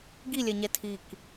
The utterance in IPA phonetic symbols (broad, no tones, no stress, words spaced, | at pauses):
ɡilʲɛɲɛ tʰik